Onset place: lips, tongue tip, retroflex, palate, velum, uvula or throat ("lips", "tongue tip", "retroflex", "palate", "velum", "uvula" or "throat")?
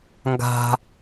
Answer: velum